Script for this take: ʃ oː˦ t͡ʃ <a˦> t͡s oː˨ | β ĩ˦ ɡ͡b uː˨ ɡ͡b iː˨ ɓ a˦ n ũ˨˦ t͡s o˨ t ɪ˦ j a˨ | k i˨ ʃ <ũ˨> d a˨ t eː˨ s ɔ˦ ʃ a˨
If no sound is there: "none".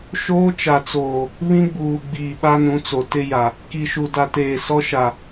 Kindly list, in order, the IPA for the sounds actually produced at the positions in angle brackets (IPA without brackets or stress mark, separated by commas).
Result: a˨, u˨